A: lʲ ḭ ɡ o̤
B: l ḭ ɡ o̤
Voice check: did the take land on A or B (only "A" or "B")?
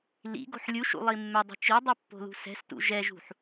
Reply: B